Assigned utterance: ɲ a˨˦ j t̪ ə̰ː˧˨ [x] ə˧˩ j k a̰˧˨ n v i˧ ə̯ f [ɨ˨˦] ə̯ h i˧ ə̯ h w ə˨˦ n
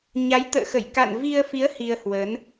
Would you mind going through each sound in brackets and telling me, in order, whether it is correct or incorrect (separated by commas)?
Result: correct, incorrect